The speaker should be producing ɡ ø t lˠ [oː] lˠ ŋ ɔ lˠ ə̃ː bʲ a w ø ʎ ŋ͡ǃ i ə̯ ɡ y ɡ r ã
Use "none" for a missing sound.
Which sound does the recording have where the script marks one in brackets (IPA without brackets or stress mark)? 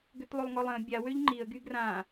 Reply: o